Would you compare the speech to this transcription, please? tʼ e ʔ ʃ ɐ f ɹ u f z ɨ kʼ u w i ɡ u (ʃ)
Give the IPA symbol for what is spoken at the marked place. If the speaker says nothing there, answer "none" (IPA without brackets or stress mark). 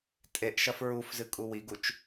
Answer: t͡ʃ